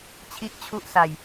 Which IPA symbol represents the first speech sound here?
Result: t͡ɕʰ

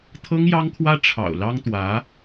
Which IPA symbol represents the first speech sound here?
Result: t̪ʰ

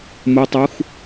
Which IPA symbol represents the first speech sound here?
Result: m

